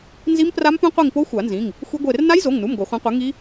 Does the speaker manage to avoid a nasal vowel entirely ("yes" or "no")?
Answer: no